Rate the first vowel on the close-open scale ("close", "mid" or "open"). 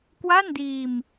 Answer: open